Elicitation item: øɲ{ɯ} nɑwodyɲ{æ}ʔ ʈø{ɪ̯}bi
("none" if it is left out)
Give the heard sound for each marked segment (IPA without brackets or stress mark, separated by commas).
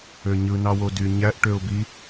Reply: ɯ, æ, ʊ̯